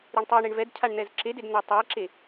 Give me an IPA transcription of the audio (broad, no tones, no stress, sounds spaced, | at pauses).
ɾ i ɳ tˤ i ɳ e ɳ v ɛ d cʰ a ɳ n̪ ɛ z ǁ e d e d n̪ a tˤ e ǁ e